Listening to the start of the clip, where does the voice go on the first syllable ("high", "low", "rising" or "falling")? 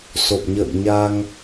low